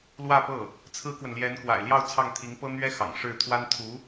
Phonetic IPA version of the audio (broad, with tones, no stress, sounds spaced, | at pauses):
l w ä˥˧ p ɤ˥˩ | t͡sʰ ɹ̩˥ k w ə˨ n l j ɛ˧˥ n k w a̰˨˩ ɪ̯ l j ɑ˥˧ ʊ̯ t͡sʰ ɑ˥˩ ŋ t̪ʰ i˧˥ ŋ p ɤ˥ n̪ ɥ ɛ˥ x ɑ̰˨˩ ŋ ʂ ɻ̩˥˩ t̪ʰ w a˥ n t̪ʰ u˧˥